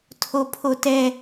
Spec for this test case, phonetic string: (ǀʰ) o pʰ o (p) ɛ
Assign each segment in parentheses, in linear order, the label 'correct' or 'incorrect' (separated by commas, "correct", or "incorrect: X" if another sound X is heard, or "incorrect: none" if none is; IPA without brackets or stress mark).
incorrect: tʰ, incorrect: t